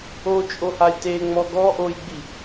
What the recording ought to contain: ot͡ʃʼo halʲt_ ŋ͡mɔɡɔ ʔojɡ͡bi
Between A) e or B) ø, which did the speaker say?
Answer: A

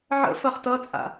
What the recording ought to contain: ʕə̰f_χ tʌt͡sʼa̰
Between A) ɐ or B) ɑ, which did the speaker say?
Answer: A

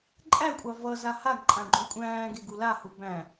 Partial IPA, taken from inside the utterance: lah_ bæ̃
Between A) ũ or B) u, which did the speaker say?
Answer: B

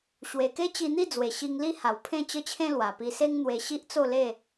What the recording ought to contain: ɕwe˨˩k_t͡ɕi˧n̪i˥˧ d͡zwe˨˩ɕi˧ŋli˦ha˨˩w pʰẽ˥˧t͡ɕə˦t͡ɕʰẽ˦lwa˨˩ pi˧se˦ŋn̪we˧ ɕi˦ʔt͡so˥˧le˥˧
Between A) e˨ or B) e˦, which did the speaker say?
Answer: B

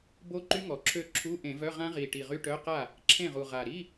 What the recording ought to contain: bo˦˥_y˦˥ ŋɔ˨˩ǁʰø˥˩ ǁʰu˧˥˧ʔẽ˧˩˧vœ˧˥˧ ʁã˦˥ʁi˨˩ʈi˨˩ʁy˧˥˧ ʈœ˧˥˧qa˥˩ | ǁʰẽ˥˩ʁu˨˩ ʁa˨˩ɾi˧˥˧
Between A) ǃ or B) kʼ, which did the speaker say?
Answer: A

